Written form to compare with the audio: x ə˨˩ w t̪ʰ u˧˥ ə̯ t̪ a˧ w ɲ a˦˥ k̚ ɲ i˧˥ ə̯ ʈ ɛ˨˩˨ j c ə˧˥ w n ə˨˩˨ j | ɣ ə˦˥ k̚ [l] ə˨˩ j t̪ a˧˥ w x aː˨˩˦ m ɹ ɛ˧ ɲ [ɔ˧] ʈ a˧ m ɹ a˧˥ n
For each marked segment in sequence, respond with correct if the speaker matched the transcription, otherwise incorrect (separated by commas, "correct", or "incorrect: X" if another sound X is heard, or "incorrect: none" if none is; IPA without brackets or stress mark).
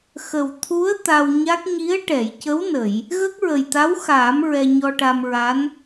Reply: incorrect: ɹ, correct